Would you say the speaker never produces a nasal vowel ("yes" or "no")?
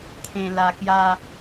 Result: no